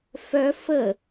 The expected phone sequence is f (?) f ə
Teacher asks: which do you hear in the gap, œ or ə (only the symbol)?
œ